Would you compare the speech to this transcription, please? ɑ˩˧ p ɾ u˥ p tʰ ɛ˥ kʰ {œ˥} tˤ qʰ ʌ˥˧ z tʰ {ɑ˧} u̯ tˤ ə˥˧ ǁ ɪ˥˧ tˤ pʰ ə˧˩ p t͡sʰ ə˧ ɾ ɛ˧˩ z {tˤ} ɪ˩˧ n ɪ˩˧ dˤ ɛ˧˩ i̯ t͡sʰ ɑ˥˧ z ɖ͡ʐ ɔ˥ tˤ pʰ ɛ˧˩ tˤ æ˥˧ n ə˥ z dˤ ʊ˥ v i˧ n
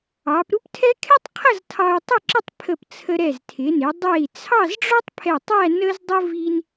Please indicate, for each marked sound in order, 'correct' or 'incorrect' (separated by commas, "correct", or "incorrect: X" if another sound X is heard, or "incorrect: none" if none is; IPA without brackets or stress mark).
incorrect: ɛ˥, correct, incorrect: tʰ